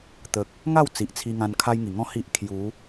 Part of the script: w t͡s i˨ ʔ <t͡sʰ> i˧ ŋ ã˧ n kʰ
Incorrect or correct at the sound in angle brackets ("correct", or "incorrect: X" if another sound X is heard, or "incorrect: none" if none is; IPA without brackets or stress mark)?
correct